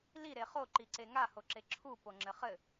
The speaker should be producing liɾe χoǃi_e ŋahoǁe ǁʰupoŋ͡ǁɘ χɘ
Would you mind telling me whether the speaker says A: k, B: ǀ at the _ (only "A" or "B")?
B